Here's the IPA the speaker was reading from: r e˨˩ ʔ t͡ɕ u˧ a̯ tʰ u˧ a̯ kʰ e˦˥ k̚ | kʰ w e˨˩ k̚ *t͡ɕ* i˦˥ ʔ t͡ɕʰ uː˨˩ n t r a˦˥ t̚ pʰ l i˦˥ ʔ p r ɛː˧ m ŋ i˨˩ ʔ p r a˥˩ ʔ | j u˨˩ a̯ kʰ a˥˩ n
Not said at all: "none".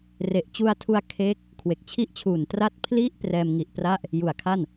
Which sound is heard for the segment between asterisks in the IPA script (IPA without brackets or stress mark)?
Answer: t͡ɕʰ